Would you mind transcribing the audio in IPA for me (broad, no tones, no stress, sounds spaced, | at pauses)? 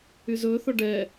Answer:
y z ɵː θ ɔ ɖ ɛ